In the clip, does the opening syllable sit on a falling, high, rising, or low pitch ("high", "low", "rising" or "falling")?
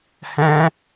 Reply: high